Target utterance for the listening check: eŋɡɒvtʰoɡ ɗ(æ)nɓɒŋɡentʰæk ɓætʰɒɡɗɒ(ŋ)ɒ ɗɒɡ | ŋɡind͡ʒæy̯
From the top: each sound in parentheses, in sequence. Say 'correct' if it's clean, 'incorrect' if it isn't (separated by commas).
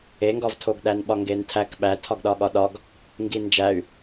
correct, incorrect